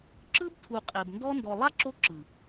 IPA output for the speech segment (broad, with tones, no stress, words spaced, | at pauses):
ǁɯ˦btʰu˨ qʼe˨bndɔ˦ ndɔ˨lˠa˦ǁo˧ ǁɯ˨